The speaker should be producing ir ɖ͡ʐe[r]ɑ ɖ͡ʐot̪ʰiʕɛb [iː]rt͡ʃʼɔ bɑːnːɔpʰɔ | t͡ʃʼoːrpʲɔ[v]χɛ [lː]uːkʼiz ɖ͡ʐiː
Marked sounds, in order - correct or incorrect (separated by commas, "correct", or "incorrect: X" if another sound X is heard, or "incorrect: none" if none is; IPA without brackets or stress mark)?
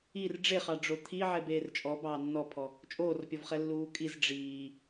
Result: incorrect: χ, incorrect: eː, correct, correct